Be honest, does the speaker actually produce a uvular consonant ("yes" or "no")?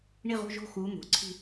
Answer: yes